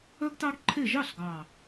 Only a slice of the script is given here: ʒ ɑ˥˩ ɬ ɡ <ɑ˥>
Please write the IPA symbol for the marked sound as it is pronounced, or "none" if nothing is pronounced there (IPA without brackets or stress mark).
ɑ˨˩